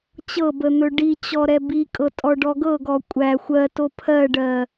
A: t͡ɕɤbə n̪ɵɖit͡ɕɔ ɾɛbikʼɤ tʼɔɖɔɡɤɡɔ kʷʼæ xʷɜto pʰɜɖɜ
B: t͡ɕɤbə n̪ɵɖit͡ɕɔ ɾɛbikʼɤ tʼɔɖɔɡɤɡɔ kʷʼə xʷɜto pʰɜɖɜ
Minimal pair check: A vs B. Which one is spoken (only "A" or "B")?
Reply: A